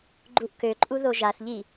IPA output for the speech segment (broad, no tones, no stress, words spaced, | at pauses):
ɡ͡ǃuʔkøǃʼu ðoʒaθʎi